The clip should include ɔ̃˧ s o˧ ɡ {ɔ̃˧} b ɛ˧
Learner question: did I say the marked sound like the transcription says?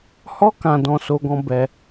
yes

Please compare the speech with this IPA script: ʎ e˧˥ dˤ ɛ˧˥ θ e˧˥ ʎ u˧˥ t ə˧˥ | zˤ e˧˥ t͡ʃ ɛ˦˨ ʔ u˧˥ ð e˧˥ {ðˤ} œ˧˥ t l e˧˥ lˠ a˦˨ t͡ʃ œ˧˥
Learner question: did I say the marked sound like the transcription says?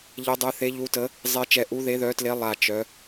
no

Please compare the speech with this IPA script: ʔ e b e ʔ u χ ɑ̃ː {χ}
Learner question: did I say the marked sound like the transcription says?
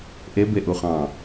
no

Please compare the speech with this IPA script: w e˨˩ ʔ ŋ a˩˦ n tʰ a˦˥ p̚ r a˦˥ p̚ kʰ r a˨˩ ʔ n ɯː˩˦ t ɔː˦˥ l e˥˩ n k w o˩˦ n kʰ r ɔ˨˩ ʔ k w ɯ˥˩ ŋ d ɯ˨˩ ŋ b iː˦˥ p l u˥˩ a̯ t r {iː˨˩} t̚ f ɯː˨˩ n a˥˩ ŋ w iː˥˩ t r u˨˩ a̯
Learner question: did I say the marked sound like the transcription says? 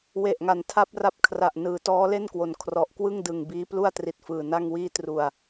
no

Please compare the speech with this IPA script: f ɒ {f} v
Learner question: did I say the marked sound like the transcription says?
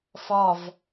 no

